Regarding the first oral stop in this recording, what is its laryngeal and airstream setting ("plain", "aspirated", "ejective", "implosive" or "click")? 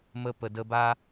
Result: plain